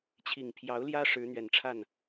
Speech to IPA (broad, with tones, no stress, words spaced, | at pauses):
t͡ɕʰi˨˩ŋ pʰjɑ˧˥ʊ̯ljä˥ ʂɻ̩˧˥n̪ɥɛ˨˩nʈ͡ʂʰa˥˩n